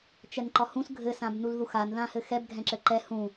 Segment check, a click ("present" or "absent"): present